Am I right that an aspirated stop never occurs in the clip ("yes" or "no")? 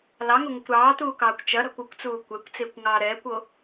yes